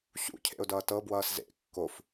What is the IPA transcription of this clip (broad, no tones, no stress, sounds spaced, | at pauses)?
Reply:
ɕ ṵ cʰ ḛ ʊ̯ d ʌː t ɤ b w ʌː s z ḛ kː o f